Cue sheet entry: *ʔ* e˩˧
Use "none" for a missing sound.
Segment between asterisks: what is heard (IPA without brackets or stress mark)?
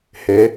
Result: h